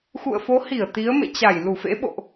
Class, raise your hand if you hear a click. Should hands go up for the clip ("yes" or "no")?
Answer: no